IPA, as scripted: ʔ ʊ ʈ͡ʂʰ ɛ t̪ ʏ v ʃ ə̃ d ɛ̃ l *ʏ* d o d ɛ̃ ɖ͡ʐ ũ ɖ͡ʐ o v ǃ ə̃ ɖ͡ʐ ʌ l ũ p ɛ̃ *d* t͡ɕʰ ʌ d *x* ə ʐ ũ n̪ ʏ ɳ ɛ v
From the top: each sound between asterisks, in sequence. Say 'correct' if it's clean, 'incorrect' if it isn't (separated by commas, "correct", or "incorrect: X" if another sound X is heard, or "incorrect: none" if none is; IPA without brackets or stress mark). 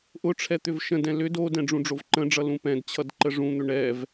correct, correct, incorrect: ǃ